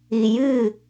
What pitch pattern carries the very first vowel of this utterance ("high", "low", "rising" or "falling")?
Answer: low